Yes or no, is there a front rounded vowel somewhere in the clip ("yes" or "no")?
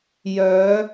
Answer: yes